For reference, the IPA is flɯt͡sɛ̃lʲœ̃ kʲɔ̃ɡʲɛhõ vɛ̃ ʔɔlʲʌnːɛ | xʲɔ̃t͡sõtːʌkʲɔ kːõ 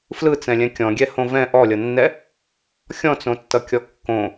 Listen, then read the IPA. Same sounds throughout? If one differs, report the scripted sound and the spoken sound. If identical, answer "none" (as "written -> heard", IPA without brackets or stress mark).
œ̃ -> ɛ̃